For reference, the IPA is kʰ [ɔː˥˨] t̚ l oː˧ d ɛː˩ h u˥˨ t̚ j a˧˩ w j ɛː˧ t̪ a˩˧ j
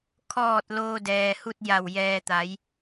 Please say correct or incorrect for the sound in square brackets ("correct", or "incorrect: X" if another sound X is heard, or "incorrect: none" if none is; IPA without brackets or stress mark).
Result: incorrect: ɔː˧˩